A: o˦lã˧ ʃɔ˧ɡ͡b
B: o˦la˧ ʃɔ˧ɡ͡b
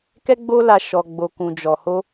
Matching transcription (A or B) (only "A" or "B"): B